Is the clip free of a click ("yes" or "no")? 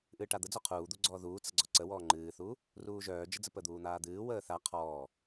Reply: no